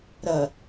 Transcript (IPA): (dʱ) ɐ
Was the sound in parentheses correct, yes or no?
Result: no